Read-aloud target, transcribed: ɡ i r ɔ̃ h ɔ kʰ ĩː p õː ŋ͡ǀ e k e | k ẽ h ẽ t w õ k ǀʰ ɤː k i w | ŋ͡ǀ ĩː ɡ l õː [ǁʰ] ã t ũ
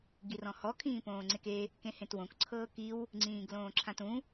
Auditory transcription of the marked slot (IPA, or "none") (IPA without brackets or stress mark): ǁʰ